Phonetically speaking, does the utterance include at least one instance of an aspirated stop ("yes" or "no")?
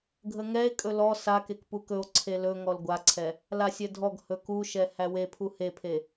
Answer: yes